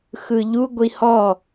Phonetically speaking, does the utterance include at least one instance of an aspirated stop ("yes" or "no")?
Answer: no